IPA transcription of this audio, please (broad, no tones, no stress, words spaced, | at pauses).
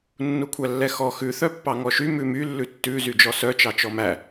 nːukʷʰælːɛxɔ xʉ θœpːɑŋɔʃy mʉmy lːʉtːʉ zyd͡ʒɔsœ t͡ʃɑt͡ʃɔmæ